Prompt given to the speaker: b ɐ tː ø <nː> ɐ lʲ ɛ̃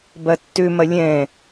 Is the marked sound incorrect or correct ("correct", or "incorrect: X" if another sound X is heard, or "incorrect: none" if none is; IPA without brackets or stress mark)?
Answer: incorrect: m